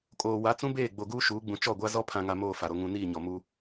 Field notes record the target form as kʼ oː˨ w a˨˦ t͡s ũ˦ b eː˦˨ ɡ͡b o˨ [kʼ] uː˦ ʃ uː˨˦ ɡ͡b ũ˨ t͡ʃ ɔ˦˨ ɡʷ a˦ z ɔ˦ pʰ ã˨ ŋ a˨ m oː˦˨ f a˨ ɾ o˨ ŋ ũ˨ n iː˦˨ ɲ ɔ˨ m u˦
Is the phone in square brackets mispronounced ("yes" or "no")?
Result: yes